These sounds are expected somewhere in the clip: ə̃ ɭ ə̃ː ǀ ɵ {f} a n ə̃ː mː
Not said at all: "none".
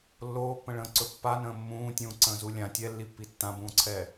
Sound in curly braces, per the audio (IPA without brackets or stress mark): pː